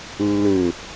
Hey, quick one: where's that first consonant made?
tongue tip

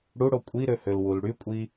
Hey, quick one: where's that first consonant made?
retroflex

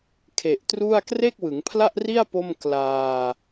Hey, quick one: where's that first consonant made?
velum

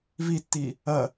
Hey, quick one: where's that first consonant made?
lips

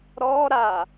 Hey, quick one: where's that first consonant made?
tongue tip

